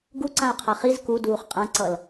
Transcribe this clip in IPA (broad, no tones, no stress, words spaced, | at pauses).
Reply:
ɡuǀãʊ̯qʰa χiz kuduːχ qʼãǀʌl